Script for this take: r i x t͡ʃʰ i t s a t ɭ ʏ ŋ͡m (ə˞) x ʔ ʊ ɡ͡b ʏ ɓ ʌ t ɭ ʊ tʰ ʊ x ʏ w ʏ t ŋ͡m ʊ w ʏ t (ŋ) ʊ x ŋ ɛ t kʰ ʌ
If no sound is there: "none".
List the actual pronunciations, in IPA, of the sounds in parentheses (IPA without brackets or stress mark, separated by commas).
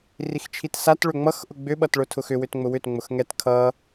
ʌ, ŋ͡m